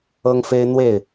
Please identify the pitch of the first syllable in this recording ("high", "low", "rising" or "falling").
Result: high